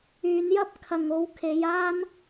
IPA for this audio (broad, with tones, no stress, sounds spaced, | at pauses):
yː˨˧ n j ɐ˥ p̚ kʰ ɐ˨ ŋ o˨˧ w kʰ e˨˧ j aː˥ n